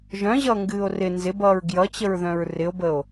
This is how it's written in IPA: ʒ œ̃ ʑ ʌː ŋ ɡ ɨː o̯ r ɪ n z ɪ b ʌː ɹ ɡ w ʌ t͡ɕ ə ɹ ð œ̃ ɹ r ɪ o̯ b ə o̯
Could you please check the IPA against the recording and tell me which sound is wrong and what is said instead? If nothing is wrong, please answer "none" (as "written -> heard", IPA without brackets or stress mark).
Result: w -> j